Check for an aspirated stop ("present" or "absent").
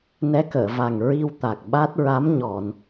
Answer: absent